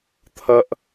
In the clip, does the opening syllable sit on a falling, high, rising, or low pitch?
high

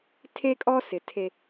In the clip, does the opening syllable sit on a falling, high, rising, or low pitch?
high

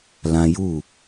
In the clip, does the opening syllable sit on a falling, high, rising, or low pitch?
high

